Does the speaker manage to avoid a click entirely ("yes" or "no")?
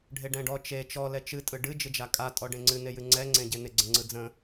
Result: no